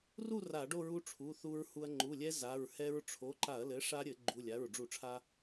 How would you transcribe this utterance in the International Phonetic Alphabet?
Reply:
r u˥˧ r a˧˩˧ ɖ o˥˧ ɹ u˦˥ ʈ͡ʂʰ u˩˧˩ θ u˧ ɹ h u˧ ɐ̯ ŋ͡ǃ u˩˧˩ lʲ ɛ˦˥ z a˩˧˩ ɹ h ɛ˦˥ ɹ ʈ͡ʂʰ o˩˧˩ ǃ a˧˩˧ ɐ̯ l ɘ˩˥ ʂ a˦˥ ɾʲ ɘ˧˩˧ ɡ͡ǃ u˩˧˩ lʲ a˩˧˩ ɹ ɖ͡ʐ u˧˩˧ ʈ͡ʂʰ a˧

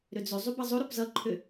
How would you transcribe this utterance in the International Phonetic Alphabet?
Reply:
ɾ ʏ d͡z ʏ zˤ u b ʌ zˤ o ɾ u p z ʌ ǃʰ ʏ

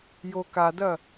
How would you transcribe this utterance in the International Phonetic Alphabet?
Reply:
j o k a d ɐ

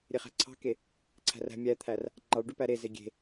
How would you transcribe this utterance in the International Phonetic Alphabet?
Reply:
ɾʲ e χ æ̤ ǀʰ ɑ̤ k e | ǀʰ æ̤ r æ̤ mʲ æ t̪ʰ æ r | ŋ͡ǃ ɑ ɭ ɖ ʉ p æ ɾ e z e ɡʲ e̤

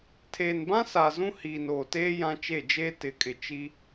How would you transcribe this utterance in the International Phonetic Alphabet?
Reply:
tʰ eː˨ n b ã˦ s aː˨ z ũ˦ h iː˨ n oː˨ t eː˦ j ã˦ t͡ʃ e˦˨ d͡ʒ eː˦ t ɪ˨˦ kʼ ɪ˨ t͡ʃ i˦

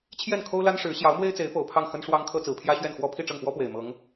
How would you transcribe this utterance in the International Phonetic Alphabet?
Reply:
t͡ɕʰ j ɛ˥˩ n kʰ o˥ ʊ̯ l a˥ n ʂ ɻ̩˧˥ ɕ j ɑ˧˥ ʊ̯ m w e˥ ɪ̯ t͡s e˧˥ ɪ̯ p o˨˩ ʊ̯ pʰ ɑ˥˩ ŋ x ə˥ n ʂ w ɑ˥ ŋ kʰ ɤ˥ t͡s ɹ̩˨˩ pʰ j ä˥ ɕ ɥ ɛ˥˩ n x w ɔ˥ pʰ i˥˧ ʈ͡ʂ ɤ˥˩ ŋ p w ɔ˥ p w e˨˩ ɪ̯ m ɤ˧˥ ŋ

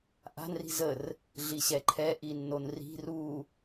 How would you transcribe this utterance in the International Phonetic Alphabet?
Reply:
ʔ a̤ n r i̤ z ə r | ɮ i ɕ ɛ ǃʰ ɛ ʔ i nː o n r i̤ r u

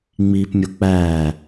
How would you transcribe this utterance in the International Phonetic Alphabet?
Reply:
ŋ͡m iː p mʲ o k͡p æː

